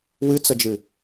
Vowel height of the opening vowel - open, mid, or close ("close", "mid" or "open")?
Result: close